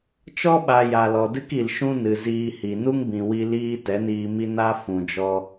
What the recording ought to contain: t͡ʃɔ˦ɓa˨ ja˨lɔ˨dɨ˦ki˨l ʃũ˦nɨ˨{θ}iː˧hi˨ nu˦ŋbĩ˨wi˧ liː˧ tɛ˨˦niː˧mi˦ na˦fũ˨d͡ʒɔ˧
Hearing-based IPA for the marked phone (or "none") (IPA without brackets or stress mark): z